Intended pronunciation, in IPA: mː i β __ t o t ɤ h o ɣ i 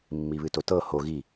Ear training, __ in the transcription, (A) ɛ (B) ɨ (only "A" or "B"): B